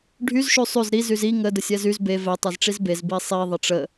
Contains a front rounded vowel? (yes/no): yes